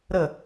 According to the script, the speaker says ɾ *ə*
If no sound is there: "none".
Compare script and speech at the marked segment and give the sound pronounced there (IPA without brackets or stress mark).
ə